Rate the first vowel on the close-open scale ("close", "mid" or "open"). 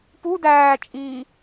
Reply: close